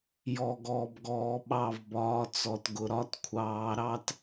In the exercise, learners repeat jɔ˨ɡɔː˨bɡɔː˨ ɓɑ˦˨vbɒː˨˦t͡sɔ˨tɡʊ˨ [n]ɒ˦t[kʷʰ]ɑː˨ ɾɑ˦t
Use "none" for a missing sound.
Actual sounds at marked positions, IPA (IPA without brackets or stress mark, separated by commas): ɾ, kʷʰ